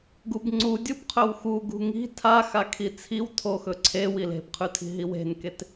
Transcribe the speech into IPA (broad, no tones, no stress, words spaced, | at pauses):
ɡubŋ͡ǀu dʲubqʰɵwxu ɡṳŋi̤ tʰaxakʰi t͡sʰiw tʰoxɵǀʰe wile̤bqʰʉtʰi̤ ɦiwe̤nket